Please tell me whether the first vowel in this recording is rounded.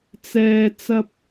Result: no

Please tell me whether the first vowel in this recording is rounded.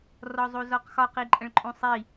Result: yes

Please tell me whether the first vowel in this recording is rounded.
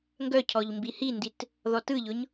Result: yes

